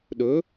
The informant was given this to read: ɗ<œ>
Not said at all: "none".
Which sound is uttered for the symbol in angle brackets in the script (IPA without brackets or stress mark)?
ɵ